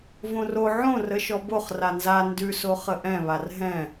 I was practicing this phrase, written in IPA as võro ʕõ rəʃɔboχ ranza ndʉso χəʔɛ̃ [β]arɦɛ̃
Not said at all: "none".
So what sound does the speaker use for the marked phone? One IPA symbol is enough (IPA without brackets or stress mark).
β